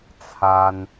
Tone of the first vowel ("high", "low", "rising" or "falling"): high